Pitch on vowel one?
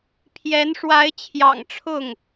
rising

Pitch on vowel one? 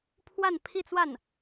falling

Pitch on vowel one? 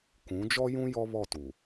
rising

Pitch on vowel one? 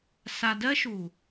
low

